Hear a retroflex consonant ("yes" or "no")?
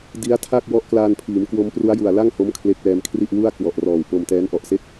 no